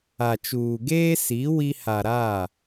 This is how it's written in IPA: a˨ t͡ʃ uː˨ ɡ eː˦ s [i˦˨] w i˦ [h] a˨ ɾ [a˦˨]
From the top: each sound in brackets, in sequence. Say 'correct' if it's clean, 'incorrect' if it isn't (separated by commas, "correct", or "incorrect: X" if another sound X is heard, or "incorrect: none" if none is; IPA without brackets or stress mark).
incorrect: i˨˦, correct, correct